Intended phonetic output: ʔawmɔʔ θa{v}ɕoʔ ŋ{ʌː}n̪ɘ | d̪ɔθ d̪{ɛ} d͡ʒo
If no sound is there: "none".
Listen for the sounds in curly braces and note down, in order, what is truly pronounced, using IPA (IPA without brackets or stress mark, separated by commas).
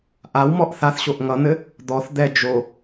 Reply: θ, ʌ, ɛ